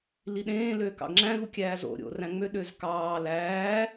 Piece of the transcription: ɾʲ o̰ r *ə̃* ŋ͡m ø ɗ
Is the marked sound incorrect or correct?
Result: incorrect